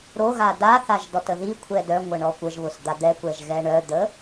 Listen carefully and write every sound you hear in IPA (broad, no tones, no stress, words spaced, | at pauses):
ɾoɣa daθaʒ dɔtəðikʷʰɛ dœ ŋʷəɳɔkʷəʒβʊs d̪ad̪ɛkʷɛʒ ɣɛɳœd̪ə